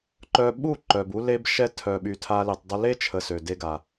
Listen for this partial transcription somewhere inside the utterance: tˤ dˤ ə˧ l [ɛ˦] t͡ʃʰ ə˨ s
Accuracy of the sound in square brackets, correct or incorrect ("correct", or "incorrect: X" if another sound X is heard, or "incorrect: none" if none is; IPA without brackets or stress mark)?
incorrect: e˦